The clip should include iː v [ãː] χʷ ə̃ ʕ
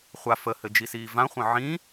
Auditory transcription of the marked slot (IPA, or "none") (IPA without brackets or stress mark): ã